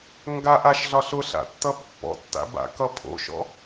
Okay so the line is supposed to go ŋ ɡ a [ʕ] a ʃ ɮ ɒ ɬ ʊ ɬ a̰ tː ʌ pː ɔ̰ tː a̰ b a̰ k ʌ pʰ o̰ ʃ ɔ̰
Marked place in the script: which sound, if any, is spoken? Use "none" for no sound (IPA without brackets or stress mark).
ʔ